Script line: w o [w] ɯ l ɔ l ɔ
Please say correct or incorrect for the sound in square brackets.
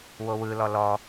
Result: correct